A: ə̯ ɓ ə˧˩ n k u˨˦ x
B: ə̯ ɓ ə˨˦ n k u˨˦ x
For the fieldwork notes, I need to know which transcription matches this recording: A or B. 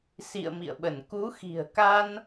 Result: A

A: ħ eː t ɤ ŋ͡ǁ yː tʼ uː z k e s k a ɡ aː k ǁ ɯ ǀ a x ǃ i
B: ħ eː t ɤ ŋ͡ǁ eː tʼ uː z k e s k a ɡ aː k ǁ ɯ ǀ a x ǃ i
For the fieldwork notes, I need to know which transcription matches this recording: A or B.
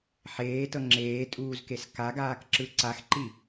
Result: B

